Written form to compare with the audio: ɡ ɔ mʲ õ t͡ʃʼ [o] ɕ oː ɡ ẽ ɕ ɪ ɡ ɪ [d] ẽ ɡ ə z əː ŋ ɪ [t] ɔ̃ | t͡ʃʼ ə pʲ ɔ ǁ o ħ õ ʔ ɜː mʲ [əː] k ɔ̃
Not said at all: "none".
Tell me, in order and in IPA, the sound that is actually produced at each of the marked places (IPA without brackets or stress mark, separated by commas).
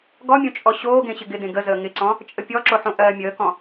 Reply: ɔ, d, ǀ, əː